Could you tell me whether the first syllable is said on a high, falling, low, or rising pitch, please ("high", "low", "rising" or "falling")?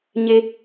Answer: high